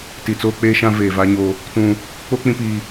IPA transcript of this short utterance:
ti˨t͡soː˦k͡peː˦ʃã˦ veː˨ va˦ɲo˦ | tũ˦ | k͡po˦ k͡pĩ˦piː˦

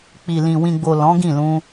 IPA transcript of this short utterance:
k͡pi˨lĩ˨ wĩ˨ɡ͡bo˨ lɔ̃˨˦ɡĩ˦˨lũ˧

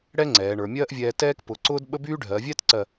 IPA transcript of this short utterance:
ɽɛ˥ ŋ͡ǀɛː˩˧ɳə˞˩˧ mʲɜː˥ʔvʲɛː˧tɛː˥k pʊ˩˧ǀʊː˥d ɓə˥byː˥ ɖʱɜː˩˧vʲɛː˥tǀɜ˧˩

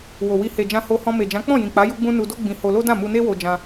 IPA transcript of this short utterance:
wo˨wi˧ he˨d͡ʒã˧ ho˧hɔ̃˧me˨d͡ʒã˨˦ k͡pɔ̃˦˨jĩ˨k͡pa˨˦ ju˧ɡ͡bũ˧ nu˧do˦ ɡ͡bĩ˧ho˧lo˦dã˦˨ mu˧ne˦wo˧d͡ʒã˧

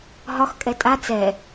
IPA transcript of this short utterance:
ɦɒx kʼɛtʼa t͡sɛ

